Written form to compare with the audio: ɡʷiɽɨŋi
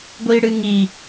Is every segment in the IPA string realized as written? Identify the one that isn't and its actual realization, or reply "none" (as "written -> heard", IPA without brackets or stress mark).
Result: none